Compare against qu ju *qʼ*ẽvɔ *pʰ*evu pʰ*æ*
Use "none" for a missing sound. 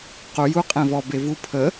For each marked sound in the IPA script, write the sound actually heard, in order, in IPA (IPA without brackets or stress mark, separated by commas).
qʼ, b, ə